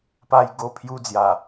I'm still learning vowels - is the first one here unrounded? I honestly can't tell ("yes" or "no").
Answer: yes